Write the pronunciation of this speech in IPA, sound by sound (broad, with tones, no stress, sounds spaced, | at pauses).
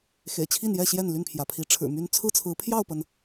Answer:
x ḛ˨˩ ɪ̯ t͡ɕʰ i˥˨ n j ɛ˥˨ ɕ j ɛ˥˨ n l y˥˨ n pʰ j ä˩ pʰ i˨˦ ʈ͡ʂʰ ɻ̩˨˩ m y˦ n t͡sʰ ɹ̩˥˨ t͡sʰ ɹ̩˨˦ pʰ j ɑ˥˨ ʊ̯ p ə˩ n